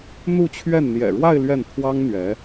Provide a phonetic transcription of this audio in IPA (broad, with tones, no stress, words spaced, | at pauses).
n̪u˥˧t͡ɕʰɥɛ˥˩n n̪jɛ̰˨˩ɻwa˥˧ɪ̯ lɥɛ˥˩n t̪ʰwɑ˥ŋ n̪ɥɛ˧˥